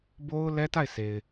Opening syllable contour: high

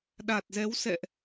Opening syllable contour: low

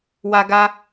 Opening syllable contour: high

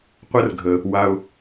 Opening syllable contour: high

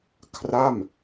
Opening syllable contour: falling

